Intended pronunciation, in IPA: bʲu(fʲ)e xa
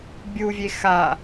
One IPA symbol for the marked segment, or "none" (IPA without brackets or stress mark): vʲ